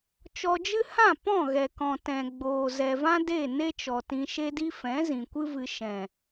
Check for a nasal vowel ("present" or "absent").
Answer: present